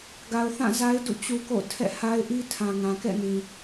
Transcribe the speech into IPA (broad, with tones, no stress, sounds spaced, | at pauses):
ɡ a˨ ʊ̯ θ ã˦˨ z a˦ ɪ̯ d ṵ˦˨ t͡ɕ u˦ k o̰˦˨ tʰ ɛ̰˦˨ h a˦ ɪ̯ ʔ i˦ tʰ ã˨ ŋ ã˨ k ɛ̰˦˨ n ĩ˨